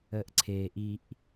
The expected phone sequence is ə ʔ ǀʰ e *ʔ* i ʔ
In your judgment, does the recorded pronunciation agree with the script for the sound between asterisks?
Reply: yes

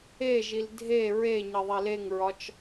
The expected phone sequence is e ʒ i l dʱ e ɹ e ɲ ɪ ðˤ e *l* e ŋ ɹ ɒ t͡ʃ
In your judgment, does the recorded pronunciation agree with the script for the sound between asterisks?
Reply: yes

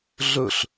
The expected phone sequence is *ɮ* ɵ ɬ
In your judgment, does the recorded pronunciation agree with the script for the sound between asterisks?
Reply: yes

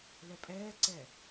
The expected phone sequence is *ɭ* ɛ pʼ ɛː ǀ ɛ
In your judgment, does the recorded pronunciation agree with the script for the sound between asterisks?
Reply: no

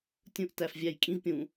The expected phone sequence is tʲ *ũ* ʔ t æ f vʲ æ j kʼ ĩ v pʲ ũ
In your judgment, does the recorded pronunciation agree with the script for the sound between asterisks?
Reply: yes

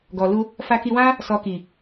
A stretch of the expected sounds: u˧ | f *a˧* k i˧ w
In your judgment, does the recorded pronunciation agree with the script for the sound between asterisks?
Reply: yes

